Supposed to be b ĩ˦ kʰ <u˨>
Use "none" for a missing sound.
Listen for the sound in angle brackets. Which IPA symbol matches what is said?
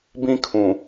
ũ˨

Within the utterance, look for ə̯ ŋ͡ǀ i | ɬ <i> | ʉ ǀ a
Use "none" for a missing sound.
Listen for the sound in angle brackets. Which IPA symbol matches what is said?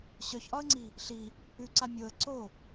i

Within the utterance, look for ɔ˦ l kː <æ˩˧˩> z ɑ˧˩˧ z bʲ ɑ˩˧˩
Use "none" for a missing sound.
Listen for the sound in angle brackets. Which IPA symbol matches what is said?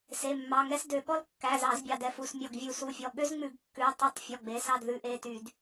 æ˩˧˩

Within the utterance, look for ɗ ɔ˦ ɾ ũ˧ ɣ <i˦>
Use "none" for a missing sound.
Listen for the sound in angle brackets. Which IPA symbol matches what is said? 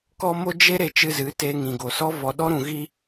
i˦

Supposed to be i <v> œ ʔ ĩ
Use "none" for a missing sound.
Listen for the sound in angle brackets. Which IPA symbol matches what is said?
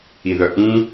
ð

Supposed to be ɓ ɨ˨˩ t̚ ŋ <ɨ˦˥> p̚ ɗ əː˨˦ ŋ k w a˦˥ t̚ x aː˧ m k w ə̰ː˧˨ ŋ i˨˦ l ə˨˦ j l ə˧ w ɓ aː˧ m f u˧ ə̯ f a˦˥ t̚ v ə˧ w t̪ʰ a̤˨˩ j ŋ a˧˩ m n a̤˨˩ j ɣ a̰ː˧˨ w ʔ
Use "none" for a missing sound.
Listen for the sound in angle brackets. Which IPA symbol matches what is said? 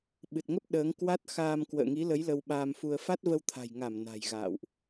ə˦˥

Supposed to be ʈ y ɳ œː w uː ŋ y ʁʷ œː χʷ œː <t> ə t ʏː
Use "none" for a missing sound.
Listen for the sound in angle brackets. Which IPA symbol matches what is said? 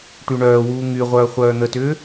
n̪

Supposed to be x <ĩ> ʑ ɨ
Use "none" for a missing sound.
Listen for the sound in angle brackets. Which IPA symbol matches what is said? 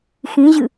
ĩ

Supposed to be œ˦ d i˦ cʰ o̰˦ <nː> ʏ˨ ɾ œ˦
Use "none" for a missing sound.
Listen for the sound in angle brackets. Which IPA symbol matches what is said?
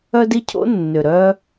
nː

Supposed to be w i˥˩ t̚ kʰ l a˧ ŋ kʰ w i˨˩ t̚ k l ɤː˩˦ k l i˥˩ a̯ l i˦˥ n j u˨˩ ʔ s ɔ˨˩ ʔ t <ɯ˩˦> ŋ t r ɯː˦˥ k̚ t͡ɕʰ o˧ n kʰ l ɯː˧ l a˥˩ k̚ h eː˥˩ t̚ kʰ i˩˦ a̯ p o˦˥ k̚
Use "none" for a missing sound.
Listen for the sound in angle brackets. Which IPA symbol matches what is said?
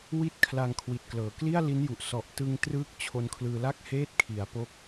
ɯ˧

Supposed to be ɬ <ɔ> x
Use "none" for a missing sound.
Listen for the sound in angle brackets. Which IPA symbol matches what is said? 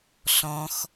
ɔ̃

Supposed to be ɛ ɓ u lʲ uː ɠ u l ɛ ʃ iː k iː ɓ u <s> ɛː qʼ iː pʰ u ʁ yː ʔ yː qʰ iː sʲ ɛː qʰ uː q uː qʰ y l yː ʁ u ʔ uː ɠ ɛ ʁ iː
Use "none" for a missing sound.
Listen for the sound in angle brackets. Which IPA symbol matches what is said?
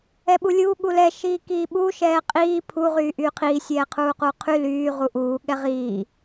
ʃ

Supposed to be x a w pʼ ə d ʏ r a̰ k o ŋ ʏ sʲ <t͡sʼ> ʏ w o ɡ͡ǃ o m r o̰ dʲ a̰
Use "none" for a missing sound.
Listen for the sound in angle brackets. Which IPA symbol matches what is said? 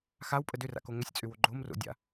t͡sʼ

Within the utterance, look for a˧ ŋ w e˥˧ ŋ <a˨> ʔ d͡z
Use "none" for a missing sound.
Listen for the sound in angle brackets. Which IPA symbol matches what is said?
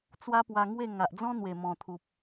a˨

